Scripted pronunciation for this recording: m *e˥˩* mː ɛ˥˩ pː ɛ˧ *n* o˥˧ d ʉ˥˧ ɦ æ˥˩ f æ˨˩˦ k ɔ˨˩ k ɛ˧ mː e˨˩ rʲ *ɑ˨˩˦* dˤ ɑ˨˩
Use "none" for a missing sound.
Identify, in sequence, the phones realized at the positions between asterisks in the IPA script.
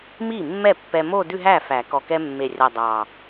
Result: i˥˩, m, ɑ˨˩

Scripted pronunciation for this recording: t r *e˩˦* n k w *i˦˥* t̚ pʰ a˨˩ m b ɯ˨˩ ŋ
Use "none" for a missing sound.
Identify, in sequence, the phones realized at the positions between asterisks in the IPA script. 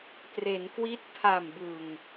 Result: e˩˦, i˦˥

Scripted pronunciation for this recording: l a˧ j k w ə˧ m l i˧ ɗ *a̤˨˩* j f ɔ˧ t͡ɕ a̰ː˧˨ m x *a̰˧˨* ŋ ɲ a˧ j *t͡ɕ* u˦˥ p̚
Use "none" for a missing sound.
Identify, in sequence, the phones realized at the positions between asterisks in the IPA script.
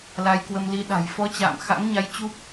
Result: a̤˨˩, a̰˧˥, t͡ɕ

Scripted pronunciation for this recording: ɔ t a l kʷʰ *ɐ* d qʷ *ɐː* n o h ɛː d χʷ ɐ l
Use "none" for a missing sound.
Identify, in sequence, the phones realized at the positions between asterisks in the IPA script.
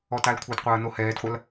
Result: ɐ, ɐː

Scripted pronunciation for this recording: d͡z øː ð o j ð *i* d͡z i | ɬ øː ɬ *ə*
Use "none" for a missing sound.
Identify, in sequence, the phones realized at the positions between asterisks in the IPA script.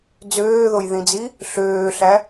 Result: ĩ, æ

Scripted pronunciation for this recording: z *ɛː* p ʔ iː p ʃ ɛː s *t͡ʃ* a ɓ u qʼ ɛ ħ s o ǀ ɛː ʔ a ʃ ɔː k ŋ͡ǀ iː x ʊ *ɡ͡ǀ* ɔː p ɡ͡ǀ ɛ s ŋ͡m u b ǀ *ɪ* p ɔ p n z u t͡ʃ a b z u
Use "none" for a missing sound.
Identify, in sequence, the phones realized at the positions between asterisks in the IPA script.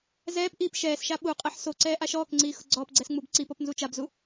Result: ɛː, ʃ, ɡ͡ǀ, i

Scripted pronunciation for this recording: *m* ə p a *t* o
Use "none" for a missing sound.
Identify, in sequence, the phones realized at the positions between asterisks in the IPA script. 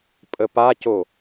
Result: pʼ, c

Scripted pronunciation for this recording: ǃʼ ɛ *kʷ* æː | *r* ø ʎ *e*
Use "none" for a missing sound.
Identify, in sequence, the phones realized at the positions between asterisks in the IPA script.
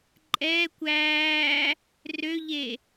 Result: kʷ, r, e

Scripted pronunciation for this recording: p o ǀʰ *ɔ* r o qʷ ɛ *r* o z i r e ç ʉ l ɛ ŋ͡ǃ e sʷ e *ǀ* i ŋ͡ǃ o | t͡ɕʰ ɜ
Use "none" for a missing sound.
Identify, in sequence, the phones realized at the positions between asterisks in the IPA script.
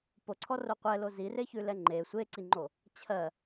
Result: ɔ, l, ǀ

